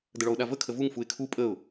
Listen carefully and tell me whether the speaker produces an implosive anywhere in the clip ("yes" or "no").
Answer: yes